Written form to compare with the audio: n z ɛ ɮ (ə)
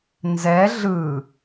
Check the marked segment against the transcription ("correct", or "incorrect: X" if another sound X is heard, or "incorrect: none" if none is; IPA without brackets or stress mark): incorrect: ɯ